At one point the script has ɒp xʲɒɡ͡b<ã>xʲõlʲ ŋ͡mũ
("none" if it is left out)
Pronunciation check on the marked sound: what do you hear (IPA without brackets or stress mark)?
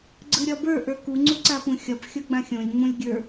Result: ã